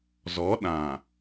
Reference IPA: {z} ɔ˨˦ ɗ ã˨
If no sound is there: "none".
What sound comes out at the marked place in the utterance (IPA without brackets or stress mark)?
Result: z